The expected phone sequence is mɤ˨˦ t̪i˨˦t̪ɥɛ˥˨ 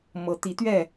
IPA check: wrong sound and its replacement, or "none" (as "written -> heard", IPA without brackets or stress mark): none